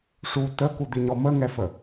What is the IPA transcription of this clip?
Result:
ʂ u t ə k u d̪ i ɲ ɔ m ə ŋ ɛ f ə

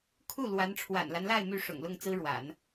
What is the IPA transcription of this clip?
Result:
kʰ u˥˩ l w a˧˥ n ʈ͡ʂʰ w a̰˨˩ n l a˦ n l a˥˧ ɪ̯ m y˥˩ ʂ ʊ̰˨˩ ŋ l ʊ˥˩ ŋ t͡s ɹ̩˥ ɻ w a̰˨˩˦ n

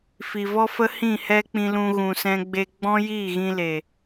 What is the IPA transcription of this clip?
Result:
f i˨ v ɔ˦ f ə˦ h ĩ˦˨ h ɛ˦ k͡p ĩ˧ l ũ˧ ɣ ũ˨ s ɛ̃˧ ɡ͡b e˧ ɡ͡b ɔ̃˦ j iː˦˨ ɣ ĩ˧ l e˨

